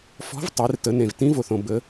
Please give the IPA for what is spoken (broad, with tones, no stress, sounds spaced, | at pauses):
f ɔ̤˧˥ v tˤ e˩˧ r t ə˩˧ n ẽ˩ v t ĩ˧˥ v o˩ θ õ˩ b ə˩˧